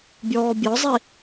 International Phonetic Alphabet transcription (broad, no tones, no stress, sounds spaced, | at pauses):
bʲ ɔː bʲ ɔ zˤ i